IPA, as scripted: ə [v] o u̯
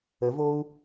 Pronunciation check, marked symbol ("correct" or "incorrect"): correct